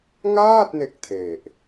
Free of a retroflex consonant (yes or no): yes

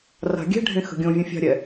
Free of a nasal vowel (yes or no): no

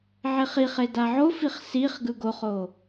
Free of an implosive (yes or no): yes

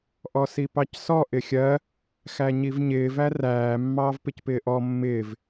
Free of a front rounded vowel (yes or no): yes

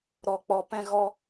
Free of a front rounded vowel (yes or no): yes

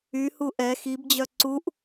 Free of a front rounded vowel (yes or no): no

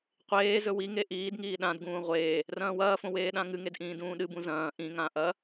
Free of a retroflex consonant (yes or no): yes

